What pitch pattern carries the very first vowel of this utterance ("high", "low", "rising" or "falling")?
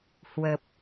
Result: low